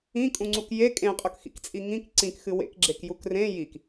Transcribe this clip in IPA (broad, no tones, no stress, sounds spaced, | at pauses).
ĩ kʼ ũ ŋ͡ǀ u k j e kʼ ẽ qʼ ɵ k x ḭ k t͡sʼ i ŋ ĩ k ǀ ĩ k x ɨ w ḛ k ɡ͡ǁ e k j u k r ẽ j i k